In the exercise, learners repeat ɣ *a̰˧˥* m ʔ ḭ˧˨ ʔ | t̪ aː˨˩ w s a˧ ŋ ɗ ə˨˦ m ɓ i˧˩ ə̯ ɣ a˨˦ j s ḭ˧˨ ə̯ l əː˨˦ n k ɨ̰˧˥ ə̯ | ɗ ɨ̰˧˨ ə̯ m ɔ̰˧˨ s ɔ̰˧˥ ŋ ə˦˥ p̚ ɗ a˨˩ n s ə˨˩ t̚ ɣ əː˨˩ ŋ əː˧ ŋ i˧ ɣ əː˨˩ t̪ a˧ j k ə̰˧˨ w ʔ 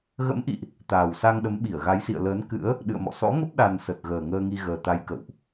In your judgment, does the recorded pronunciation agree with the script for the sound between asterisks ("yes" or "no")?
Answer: no